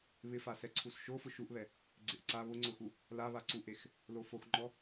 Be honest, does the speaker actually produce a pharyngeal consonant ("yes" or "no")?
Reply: no